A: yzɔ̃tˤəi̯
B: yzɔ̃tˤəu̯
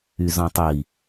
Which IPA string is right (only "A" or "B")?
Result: A